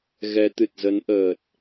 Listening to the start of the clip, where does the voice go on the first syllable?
rising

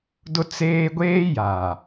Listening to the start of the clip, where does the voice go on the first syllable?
high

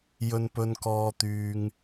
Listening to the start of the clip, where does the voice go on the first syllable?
high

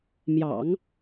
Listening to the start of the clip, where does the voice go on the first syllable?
low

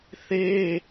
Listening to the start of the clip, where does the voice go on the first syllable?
high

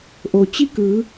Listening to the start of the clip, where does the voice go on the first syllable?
low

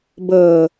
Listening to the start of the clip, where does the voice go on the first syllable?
low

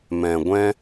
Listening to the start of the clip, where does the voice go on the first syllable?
low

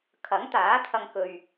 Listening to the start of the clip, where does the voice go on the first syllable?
rising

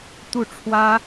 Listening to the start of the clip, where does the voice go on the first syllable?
falling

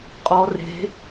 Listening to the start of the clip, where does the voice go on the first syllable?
rising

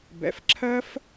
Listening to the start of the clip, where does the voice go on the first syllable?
rising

